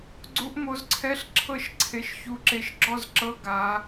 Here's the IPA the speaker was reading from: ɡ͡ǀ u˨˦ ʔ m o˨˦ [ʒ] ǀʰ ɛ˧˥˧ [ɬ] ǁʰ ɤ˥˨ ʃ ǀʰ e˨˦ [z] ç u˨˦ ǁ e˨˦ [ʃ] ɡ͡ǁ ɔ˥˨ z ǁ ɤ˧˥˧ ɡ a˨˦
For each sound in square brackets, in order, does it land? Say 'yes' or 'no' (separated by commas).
no, yes, no, yes